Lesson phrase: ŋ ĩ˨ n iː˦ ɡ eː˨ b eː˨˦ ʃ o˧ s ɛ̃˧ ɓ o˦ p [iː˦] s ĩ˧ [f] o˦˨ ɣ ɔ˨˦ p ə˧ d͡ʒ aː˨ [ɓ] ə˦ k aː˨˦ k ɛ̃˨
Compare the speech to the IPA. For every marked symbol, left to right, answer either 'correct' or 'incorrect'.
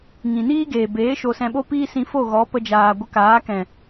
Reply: correct, correct, incorrect

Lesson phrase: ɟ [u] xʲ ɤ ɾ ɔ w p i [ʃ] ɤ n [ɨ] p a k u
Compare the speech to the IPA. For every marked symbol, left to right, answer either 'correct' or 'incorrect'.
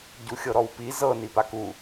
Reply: correct, incorrect, incorrect

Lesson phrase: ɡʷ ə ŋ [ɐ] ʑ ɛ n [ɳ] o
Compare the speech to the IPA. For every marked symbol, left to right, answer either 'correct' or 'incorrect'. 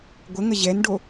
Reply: incorrect, incorrect

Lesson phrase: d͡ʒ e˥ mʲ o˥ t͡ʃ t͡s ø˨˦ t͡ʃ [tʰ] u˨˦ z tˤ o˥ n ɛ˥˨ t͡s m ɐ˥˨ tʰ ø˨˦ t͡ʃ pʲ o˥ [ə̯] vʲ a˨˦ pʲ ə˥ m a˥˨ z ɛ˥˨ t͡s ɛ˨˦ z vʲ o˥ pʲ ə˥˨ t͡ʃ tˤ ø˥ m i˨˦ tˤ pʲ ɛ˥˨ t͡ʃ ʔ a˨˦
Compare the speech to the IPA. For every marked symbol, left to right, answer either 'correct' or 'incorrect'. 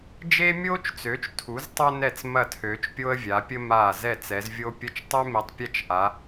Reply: correct, correct

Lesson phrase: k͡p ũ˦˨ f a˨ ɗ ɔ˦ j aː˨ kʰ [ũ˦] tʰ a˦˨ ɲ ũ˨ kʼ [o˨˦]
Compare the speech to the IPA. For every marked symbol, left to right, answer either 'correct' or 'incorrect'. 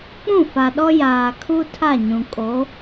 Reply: incorrect, correct

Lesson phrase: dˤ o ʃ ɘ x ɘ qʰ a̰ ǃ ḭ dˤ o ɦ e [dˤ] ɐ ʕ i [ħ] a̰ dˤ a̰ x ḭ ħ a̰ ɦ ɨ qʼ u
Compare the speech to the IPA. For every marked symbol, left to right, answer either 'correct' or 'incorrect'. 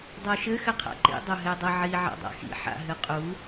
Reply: correct, incorrect

